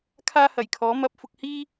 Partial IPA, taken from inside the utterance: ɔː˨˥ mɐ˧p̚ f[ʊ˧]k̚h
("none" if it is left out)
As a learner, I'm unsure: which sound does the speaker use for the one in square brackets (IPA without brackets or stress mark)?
ʊ˧